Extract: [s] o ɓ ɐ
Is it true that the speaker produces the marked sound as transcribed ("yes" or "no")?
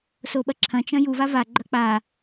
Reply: yes